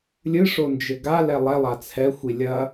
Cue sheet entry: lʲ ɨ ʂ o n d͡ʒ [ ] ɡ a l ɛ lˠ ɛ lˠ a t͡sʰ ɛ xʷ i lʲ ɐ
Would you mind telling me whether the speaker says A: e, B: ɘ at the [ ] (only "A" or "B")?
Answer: B